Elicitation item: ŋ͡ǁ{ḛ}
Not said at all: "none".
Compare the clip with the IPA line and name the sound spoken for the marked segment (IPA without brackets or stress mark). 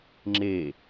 e